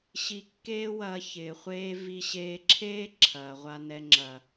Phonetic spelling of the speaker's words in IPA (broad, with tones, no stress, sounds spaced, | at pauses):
ɕ i˧ kː eː˦ w ɐː˧ ç ɪː˨ χʷ eː˦ v i˧ ɕ eː˧ ǁʰ eː˦ ǁʰ ɐː˨ ʁʷ a˧ n ɛ˧ ŋ͡ǁ ɐ˨